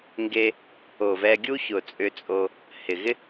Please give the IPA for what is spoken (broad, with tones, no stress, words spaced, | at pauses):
ŋɡe˦ | o˨vɛ˧ɡʲu˦ çʊ˨t͡sʼʏ˧t͡sʼo˧ | hɪ˨ɣɪ˦